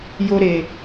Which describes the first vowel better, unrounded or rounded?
rounded